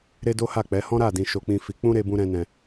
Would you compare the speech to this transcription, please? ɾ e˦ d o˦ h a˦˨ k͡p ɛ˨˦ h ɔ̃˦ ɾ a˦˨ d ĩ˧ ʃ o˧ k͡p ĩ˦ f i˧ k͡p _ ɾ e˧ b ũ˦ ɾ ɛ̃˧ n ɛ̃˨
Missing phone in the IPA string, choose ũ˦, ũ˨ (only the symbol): ũ˦